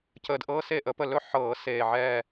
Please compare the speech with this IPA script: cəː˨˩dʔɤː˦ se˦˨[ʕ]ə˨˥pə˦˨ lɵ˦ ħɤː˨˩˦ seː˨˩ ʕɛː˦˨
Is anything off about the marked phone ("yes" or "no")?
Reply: yes